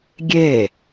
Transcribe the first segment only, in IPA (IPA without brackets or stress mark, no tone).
ɡʲ